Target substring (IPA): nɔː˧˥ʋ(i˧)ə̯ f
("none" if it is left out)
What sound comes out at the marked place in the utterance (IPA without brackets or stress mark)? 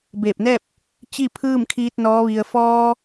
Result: i˧